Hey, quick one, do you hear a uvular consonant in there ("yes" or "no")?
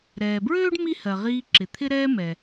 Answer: yes